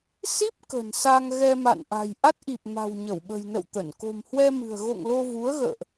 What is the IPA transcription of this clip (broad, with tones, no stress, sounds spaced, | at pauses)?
s i˦˥ p̚ k ə̤˨˩ n s a˧ ŋ ɣ ɛ˧ m a̰˧˨ n ʔ a̤˨˩ j ʔ a˦˥ t̚ ʔ i˨˩ p̚ m a̤˨˩ w ɲ ə˧˩ w ɓ ə̤˨˩ j n ə̰˧˨ w t̪ ə˧˩ n k o̤˨˩ m h w ɛ˧ m ɨ̤˨˩ ə̯ ɣ o̰˧˨ ŋ l o˧ v u˨˦ ə̯ ɣ ə̰ː˧˨ ʔ